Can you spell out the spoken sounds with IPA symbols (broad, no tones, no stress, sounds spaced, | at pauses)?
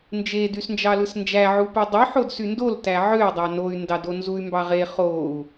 n d͡ʒ e d y s n d͡ʒ ɑ l ɯ s n d͡ʒ æ ʕ u p u dˤ y ħ o d s y n d o l t æ ʕ ø y̯ dˤ ɑ n o y̯ n d ɑ d o n z u y̯ m b ɑ ʁ e χ o u̯